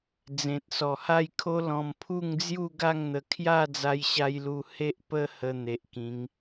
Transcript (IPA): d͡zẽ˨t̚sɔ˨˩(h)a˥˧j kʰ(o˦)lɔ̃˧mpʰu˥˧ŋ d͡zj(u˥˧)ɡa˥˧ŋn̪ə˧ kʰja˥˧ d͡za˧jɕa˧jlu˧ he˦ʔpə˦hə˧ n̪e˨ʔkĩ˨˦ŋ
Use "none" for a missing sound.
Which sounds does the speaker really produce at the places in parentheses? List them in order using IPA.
h, o˦, u˥˧

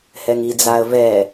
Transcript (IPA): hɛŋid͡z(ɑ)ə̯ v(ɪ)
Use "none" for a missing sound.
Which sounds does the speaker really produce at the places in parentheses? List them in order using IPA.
a, ɛ

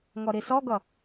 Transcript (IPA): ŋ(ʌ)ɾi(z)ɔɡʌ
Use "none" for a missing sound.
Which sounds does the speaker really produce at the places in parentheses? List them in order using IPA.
ɔ, s

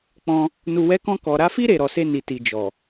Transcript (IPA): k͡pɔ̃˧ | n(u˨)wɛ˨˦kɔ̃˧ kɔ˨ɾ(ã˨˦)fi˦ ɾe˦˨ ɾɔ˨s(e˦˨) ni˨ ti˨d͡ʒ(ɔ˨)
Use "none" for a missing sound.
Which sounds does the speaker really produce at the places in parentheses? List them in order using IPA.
u˨, a˨˦, e˧, ɔ˨

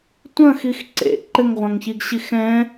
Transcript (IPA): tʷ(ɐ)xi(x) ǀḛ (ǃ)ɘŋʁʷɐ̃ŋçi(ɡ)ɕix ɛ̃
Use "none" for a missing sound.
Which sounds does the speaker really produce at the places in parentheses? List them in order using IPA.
ɐ̃, x, ǃ, ɡ

